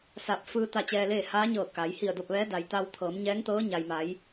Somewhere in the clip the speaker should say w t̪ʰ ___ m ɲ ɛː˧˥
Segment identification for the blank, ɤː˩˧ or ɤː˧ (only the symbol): ɤː˩˧